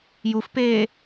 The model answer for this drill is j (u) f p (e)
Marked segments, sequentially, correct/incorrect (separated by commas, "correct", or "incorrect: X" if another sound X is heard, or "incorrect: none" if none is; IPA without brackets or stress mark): correct, incorrect: eː